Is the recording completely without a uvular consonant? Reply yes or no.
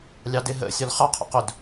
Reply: no